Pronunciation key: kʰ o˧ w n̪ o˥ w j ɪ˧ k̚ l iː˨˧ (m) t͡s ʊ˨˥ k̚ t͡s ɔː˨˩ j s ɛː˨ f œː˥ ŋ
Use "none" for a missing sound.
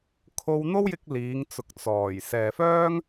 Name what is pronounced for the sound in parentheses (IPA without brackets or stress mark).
ŋ